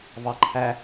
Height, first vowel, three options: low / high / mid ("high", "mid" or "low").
low